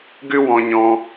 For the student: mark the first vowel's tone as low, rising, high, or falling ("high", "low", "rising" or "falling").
high